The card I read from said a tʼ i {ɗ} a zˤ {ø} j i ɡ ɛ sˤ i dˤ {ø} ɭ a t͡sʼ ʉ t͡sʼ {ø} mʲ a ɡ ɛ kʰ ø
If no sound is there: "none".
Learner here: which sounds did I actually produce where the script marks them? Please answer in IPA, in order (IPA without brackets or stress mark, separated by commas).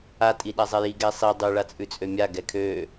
ɗ, ɛ, ʉ, ø